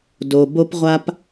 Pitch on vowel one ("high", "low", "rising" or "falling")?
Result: low